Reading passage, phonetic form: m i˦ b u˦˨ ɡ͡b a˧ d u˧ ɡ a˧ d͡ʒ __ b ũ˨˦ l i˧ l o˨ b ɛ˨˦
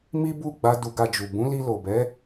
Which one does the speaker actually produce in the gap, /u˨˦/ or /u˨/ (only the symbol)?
u˨